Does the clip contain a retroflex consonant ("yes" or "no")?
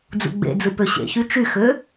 no